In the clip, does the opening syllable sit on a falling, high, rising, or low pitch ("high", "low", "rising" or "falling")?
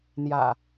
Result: low